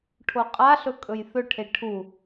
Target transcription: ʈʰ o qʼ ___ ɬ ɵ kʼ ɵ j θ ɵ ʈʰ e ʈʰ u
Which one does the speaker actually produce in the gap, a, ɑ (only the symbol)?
a